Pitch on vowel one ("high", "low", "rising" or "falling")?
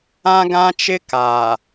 high